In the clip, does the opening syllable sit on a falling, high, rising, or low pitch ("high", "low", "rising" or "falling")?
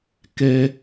high